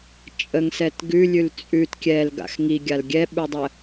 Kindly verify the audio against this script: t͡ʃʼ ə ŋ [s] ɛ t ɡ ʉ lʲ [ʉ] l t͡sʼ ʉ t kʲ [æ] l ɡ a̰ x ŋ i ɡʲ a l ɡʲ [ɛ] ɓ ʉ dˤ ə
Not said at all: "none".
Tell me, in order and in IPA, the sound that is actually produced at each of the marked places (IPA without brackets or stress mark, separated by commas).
s, ʉ, ɛ, ɛ